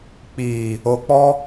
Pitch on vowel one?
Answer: low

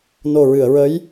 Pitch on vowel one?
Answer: low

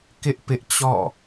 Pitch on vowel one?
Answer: high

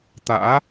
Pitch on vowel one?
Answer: rising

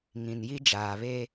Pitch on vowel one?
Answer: low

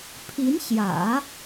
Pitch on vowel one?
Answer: rising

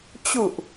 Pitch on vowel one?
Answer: low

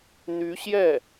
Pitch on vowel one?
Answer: rising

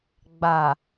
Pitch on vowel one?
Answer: low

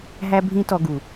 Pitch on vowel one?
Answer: high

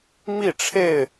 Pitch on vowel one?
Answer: falling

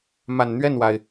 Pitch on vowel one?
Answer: low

